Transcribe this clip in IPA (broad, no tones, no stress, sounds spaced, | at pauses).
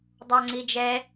dˤ a ŋ͡ǀ i d͡ʒ ɛ